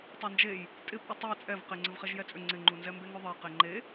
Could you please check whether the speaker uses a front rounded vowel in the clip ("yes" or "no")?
yes